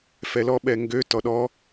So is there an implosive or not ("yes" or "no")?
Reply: yes